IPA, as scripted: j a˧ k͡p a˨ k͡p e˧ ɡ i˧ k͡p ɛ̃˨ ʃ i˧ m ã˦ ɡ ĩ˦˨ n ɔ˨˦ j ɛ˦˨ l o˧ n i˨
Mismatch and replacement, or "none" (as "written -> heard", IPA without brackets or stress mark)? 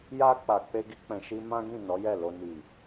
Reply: none